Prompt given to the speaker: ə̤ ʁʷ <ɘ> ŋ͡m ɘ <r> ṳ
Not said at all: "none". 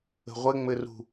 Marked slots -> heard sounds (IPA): ɘ, r

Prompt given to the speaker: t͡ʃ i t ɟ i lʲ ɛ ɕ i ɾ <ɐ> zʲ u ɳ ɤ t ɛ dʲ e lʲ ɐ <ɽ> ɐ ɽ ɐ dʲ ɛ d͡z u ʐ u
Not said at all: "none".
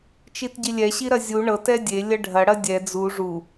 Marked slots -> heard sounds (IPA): ɐ, ɖʱ

